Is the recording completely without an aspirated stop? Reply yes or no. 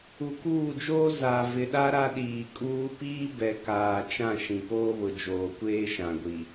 yes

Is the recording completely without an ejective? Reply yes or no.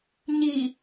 yes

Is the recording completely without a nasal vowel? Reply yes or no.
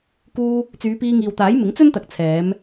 yes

